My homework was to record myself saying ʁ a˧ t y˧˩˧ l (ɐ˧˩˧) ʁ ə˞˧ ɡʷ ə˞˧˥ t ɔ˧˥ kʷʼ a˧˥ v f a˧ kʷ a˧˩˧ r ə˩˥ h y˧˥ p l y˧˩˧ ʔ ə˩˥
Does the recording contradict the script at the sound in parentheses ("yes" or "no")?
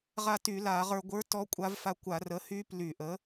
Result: yes